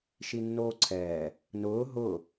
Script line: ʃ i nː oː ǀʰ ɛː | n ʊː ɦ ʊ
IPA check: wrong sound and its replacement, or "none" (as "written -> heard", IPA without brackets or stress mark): none